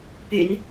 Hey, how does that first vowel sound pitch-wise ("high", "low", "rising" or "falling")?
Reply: low